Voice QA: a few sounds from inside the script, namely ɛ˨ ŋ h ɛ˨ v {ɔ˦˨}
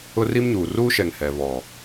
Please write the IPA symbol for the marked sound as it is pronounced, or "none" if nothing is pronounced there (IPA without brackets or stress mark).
ɔ˨